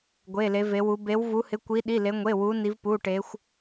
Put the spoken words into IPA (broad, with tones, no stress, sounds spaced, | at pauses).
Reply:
ɡʷ e˧˥˧ l e˧˥ v e˧˥ w u˧˥ b e˧˥ w v u˧˥ h ɪ˧˥˧ kʷ i˧˥ ɗ i˧˥˧ l e˧˥ ŋʷ e˧˥˧ w u˧˥ n i˧˥ v p u˧˥˧ ʈ e˧˥ xʷ